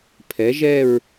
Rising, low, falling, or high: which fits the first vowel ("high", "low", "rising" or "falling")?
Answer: rising